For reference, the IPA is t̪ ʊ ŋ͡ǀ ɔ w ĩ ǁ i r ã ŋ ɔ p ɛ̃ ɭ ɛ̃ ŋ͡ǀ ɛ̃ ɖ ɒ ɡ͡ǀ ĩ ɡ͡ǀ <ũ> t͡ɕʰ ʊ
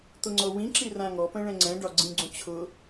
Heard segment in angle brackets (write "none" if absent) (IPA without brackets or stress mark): ũ